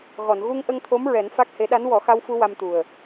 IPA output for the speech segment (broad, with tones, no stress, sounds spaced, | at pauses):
ɣ ɔ˨˩˨ n ɣ u˧ ŋ ʔ ə˧ ŋ t̪ʰ o˧˥ m ɹ ɛ˨˩˦ n f a˦˥ k̚ h e˧˥ ɗ a˧˥ n w ɔ˨˩˦ x a˧ w f u˧ w a˧ m t̪ u˨˩ ə̯